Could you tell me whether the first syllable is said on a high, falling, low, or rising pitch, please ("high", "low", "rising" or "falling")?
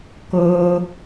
high